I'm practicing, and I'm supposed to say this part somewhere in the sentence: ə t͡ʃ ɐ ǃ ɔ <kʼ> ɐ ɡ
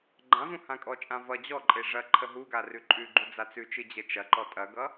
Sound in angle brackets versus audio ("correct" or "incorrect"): incorrect